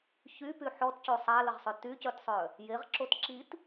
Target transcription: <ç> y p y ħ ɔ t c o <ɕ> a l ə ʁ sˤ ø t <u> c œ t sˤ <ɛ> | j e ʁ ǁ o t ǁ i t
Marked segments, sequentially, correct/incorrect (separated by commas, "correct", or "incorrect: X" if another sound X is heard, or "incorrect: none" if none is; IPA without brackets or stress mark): correct, incorrect: sˤ, incorrect: y, incorrect: œ